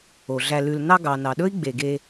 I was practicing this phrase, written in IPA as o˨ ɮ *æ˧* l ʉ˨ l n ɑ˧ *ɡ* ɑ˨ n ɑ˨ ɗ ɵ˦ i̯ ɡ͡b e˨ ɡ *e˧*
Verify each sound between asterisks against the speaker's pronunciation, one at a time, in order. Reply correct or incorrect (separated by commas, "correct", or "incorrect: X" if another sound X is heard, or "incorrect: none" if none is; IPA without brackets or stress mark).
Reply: correct, correct, correct